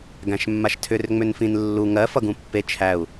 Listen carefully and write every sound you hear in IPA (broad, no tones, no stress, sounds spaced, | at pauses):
ɡ æ̃ ʃ mː a ʃ tʰ ʏ r ŋ͡m ʏ n f ĩ n lː u ŋ ɜ f ʌ ɡ ũ pː e t͡ʃʰ æ u̯